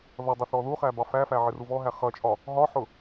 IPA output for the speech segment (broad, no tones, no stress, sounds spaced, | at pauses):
ð ʌ dˤ ʌ θ ɔ ð u χ æ b ɑ f æ f æ ʕ ɪ r u v ɔ ɦ æ χ ʌ t͡ʃʼ ɒ | ɦ ɒ ħ ʊ